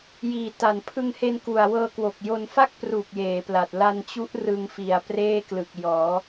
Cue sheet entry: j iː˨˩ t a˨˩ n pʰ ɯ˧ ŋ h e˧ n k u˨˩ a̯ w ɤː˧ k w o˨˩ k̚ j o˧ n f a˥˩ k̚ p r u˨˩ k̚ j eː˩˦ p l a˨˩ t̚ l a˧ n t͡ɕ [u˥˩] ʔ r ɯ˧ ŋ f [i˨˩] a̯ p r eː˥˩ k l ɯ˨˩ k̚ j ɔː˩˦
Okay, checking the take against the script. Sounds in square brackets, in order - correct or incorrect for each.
incorrect, correct

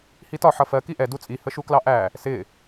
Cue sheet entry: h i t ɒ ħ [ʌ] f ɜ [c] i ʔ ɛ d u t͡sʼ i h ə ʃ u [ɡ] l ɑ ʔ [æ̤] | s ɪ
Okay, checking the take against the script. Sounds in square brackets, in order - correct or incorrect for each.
correct, incorrect, incorrect, incorrect

